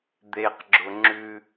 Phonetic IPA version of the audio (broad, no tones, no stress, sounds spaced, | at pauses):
d̪ e q ɡ͡ǁ ʊ ŋ͡ǁ ʉ